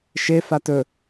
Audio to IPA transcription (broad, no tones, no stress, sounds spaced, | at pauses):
ʃ e f a t ɵ